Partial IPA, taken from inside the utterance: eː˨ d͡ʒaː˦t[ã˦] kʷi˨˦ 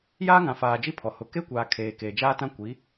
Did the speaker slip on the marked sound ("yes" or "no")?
no